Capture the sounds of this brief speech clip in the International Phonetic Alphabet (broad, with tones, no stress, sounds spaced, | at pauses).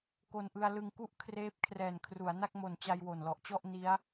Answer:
k o˧ n ʔ ɯ˧ a̯ l ɯ˧ ŋ k u˥˩ ʔ kʰ r eː˦˥ p̚ kʰ r ɛː˨˩ n kʰ r u˩˦ a̯ n a˥˩ k̚ m o˨˩ n t͡ɕ a˧ j w o˨˩ n l ɔ˨˩ ʔ t͡ɕ ɔ˥˩ ʔ n i˦˥ a̯